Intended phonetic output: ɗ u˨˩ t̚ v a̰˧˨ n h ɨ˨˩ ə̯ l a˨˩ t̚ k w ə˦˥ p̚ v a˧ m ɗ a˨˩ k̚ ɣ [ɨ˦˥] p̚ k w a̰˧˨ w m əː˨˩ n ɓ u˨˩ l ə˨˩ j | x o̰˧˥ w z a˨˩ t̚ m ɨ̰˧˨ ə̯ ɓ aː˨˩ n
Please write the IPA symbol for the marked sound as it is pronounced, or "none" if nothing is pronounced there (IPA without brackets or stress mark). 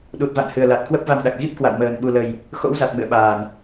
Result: i˦˥